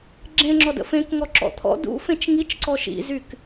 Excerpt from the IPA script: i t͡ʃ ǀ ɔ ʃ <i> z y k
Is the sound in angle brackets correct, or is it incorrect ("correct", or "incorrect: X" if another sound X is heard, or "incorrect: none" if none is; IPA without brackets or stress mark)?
incorrect: ḭ